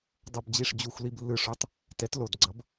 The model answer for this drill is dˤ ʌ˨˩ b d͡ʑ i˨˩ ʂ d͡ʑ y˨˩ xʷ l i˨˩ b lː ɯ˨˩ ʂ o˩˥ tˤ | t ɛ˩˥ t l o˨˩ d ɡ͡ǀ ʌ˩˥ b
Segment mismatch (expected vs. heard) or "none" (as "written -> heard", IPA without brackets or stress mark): y˨˩ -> u˨˩